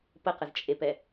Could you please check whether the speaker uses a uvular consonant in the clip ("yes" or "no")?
yes